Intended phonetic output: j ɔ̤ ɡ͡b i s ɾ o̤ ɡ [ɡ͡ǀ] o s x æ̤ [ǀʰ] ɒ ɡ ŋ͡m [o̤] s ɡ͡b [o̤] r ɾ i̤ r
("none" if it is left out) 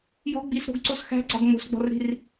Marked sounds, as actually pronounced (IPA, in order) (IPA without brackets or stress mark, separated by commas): ǀ, ɡ͡ǀ, o̤, ɔ̤